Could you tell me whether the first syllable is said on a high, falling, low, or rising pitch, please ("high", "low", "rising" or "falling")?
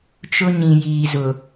high